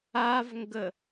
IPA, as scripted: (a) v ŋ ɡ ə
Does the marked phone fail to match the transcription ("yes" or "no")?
no